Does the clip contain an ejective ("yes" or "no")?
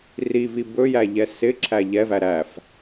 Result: no